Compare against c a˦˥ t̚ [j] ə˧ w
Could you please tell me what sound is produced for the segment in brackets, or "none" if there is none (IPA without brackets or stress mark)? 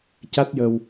j